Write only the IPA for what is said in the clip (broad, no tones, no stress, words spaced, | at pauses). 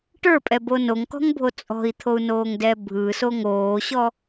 ʈə˞pʼɛbo noŋkɔ̤ŋbʱo t͡sʼɔ̤i̯t̪ʰou̯noːŋdɛ bʱɯso ŋoːɕɔ